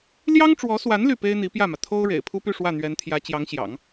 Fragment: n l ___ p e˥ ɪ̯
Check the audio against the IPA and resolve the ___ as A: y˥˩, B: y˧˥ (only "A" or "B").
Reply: A